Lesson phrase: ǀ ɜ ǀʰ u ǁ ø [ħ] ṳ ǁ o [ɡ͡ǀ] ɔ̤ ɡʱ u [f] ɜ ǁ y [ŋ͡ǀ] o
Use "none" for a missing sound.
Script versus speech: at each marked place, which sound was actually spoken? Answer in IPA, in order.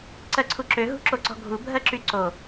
ɦ, ǀ, bʱ, ǀ

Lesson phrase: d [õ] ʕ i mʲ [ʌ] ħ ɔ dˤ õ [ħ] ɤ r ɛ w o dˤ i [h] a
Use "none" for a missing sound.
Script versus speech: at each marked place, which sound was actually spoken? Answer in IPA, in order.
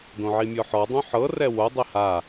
õ, ɔ, ħ, h

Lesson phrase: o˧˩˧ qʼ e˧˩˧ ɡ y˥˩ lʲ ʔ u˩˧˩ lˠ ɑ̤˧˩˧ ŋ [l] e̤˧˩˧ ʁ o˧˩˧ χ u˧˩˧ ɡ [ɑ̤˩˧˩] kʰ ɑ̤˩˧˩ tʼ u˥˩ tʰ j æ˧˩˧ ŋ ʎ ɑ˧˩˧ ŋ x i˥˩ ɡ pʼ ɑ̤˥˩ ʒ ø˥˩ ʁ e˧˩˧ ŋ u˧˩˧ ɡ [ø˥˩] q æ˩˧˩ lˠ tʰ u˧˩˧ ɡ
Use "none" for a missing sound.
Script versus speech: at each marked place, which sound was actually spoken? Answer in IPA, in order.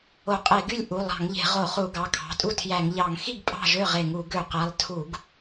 ʎ, ɑ˩˧˩, ø˧˩˧

